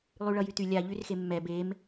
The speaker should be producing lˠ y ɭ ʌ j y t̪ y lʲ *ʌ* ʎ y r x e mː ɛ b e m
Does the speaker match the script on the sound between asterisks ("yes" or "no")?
no